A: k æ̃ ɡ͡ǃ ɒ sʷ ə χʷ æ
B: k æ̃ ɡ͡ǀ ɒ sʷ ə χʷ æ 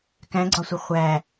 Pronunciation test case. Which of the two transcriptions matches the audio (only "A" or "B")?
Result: B